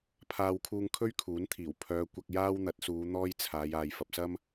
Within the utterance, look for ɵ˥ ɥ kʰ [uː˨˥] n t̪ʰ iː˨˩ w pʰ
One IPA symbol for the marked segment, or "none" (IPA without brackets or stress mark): uː˨˥